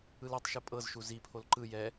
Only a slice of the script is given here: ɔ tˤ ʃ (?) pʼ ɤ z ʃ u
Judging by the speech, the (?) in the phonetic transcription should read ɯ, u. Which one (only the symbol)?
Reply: ɯ